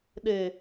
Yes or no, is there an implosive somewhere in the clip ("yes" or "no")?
yes